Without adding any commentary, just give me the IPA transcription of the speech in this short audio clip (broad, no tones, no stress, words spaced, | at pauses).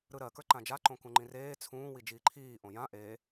ɾɯɾɜ kə˞ǃãd͡ʒa ǃõkũŋ͡ǃĩreː t͡sʰũː wid͡ʒiːǃʰiː ʔõjã ʔe